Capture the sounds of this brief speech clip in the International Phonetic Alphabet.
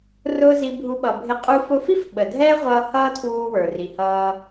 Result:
r ʊː˦ z i˧ bʱ u˧ ɓ ʌ˨ bʱ ɪ˧ qʼ u˧ f ʊ˧ f i˦ f ɓ ə˨ dʱ ɛː˦ ʁʷ ʌː˧ h ʌː˦ tʰ w uː˧ w ə˞˨ r i˨ h ʌː˧

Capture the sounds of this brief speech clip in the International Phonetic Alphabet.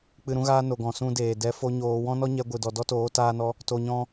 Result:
k͡p ɨ˧ ɾ ũ˦ ɣ aː˦ n o˨ ɡ ɔ̃˨ s ũ˧ d eː˨ d ɛ˧ f o˦ ɲ oː˧ w ɔ̃˦ n ɔ˦ ɲ ɛ˧ ɡʷ ɨ˨ d ɔ˨ d ɔ˦ t oː˨˦ t aː˧ n ɔ˧ | t o˧ ɲ ɔ̃˦

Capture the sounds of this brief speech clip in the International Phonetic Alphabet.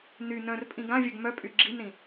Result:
n y n œ̃ r pʼ ĩ ɡ ã vʲ œ ɡ m œ pʼ y ɡ͡ǁ i n ɾ ĩ

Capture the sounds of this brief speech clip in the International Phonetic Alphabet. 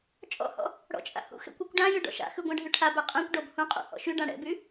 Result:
t͡ʃʼ ɔ̰ h ɔ̰ | ɽ ɔ̰ t͡ʃʼ a̰ h ṵ x ɛ̰ kʷ y kʷ ɖ ã j ʉ ɖ ɔ̰ ʃ a̰ x ʉ ɡʷ ã ɖʱ ʉ ʈʰ a b ɛ qʼ ɛ̃ kʷ ɖ ɔ b h ũ qʼ ṵ h ɔ̰ ʃ y ɖ ã ɽ ɛ̰ b y

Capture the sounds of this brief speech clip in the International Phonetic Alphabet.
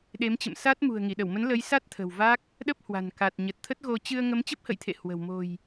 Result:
ɗ e˨˦ m t͡ɕ ə̰˧˨ m s a˦˥ t̚ m ṳ˨˩ ə̯ ŋ i˧˩ ɗ ə˧˩ w m ə˨˦ n l ə˨˦ j s a˦˥ t̚ t̪ʰ ə̤˨˩ w v a˦˥ k̚ | ɗ ə˦˥ p̚ h w a̤˨˩ n k a˨˩ t̚ ɲ ə˨˩ t̚ t̪ʰ ə˦˥ t̚ ɣ o˧ t͡ɕ ɨ˧ ə̯ ŋ ə˨˦ m t͡ɕ ə˦˥ p̚ h ə̰˧˨ j t̪ʰ ḛ˧˨ h w ə̤˨˩ w m o̤˨˩ j

